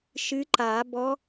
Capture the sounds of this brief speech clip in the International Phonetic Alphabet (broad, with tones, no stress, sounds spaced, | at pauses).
ʃ ɨ˧˥ ǃ a˨˩˦ b ɔ˧˥